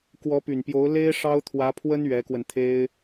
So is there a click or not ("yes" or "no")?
no